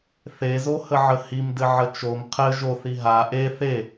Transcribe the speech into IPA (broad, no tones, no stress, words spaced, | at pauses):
θezohəʕə himdɘʕə t͡ʃom qʰɘ ʒoθi ɦa ʔe θe